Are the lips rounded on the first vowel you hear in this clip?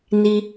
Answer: no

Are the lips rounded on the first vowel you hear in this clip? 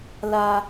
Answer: no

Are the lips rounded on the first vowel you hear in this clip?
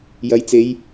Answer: no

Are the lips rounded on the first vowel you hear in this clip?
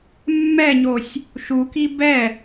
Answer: no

